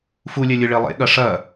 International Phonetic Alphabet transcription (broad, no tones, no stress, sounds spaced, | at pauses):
f u lʲ ɛ lʲ ɯ ɭ e lˠ ḛ ɠ ɐ ʂ ɐ